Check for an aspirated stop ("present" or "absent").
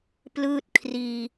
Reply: present